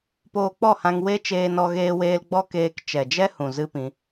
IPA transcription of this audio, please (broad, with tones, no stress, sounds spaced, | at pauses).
p oː˧ k͡p ɔ˦˨ h ã˧ ŋ w e˦ t͡ʃ eː˧ n ɔ˧ ɣ eː˧ w eː˧ l ɡ͡b ɔ˦ k eː˧ k t͡ʃ ɛ˨ d͡ʒ ɛ˦ h ũ˨ z ɨ˦ p ĩ˧